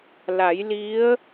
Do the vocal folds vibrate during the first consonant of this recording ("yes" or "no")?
yes